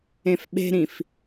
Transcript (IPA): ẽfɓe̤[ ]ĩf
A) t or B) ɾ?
B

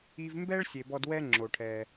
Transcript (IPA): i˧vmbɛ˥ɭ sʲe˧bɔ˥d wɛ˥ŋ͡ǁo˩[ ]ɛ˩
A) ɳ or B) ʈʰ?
B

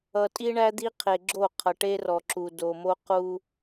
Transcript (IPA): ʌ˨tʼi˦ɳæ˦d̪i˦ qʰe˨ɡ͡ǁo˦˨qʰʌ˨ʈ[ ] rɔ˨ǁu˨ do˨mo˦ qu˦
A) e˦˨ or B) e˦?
B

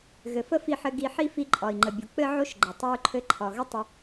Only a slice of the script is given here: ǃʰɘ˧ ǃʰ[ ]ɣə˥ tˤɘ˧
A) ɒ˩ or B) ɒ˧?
A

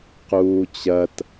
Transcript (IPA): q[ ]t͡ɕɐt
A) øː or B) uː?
B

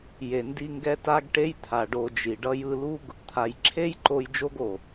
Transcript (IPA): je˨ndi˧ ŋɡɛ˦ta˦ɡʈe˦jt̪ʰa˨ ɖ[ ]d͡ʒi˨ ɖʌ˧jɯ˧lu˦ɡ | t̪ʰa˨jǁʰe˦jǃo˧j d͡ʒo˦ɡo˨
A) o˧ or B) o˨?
A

